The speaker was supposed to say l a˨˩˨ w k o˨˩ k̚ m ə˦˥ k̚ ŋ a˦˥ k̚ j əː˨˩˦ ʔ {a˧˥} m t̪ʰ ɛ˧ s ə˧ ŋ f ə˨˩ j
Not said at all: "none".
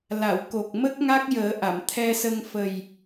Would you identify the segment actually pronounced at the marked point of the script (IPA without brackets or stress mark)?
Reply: a˨˩˨